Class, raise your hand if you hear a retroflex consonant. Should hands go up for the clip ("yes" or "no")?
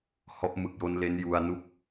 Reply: no